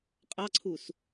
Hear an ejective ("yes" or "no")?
yes